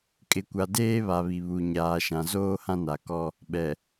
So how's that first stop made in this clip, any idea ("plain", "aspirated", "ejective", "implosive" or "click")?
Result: ejective